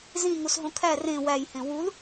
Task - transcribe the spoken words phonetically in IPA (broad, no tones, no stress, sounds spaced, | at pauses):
z ĩ ŋ u s ɦ õ kʰ æ r ẽ w æ j h ẽ w u l